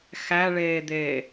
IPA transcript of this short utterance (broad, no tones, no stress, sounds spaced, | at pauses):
x æ ɭ eː d̪ eː